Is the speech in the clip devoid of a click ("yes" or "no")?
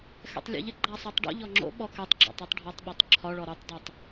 no